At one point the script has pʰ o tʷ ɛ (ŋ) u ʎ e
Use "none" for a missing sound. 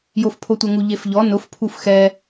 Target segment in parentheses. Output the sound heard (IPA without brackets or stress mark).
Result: ŋ